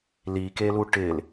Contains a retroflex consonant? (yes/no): yes